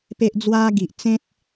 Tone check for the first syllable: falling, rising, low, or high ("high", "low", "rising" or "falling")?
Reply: high